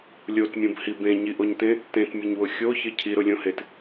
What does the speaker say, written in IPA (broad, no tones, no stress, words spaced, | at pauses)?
lʲotmʲõbhi bẽɲiʔoɲtẽ | tẽtmʲʊɲwʊ xʲoçɪ cʰiɾʊlʲõhet